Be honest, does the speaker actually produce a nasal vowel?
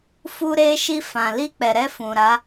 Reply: yes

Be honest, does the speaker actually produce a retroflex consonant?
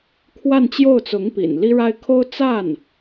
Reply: yes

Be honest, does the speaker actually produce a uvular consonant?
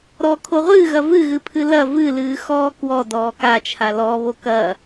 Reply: yes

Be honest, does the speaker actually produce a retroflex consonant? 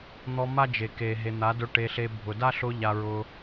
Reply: yes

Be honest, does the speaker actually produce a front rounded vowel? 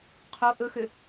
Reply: yes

